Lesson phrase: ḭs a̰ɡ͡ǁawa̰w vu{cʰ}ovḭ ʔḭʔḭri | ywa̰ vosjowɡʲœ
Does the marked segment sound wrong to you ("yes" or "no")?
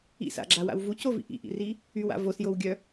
yes